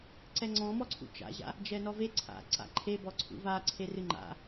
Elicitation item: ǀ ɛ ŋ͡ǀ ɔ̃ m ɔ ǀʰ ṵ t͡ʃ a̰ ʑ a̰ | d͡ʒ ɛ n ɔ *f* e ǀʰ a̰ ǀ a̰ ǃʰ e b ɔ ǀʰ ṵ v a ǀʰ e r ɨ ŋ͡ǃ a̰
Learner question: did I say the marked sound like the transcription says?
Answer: no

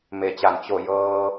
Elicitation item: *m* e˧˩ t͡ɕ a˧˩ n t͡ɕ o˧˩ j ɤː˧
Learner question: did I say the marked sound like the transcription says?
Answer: yes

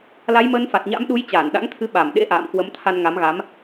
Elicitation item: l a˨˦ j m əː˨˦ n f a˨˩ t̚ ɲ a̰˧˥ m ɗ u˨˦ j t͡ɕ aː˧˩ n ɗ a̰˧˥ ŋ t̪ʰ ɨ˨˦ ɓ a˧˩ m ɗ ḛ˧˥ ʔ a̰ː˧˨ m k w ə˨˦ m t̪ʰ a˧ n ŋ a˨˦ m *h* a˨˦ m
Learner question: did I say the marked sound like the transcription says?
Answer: no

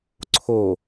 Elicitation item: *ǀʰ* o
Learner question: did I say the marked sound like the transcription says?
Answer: yes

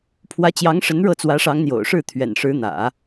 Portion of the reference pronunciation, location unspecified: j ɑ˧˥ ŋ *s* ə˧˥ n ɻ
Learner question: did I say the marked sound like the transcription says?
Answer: no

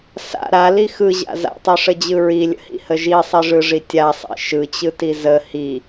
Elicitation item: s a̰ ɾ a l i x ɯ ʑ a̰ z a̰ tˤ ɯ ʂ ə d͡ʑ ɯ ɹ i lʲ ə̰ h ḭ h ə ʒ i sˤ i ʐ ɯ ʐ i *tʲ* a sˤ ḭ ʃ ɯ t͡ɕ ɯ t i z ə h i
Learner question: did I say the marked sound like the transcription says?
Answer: yes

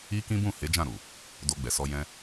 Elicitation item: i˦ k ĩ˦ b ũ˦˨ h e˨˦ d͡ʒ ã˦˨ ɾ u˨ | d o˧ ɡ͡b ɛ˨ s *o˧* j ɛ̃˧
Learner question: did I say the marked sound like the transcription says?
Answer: no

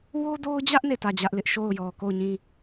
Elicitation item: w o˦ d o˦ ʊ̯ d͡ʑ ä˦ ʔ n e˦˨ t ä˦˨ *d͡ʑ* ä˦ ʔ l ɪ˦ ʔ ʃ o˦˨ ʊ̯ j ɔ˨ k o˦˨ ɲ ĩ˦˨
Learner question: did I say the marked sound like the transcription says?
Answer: yes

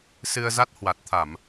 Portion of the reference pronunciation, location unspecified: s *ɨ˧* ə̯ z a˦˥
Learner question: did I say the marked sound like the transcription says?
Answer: yes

